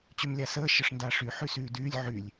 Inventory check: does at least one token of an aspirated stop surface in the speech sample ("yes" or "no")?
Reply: no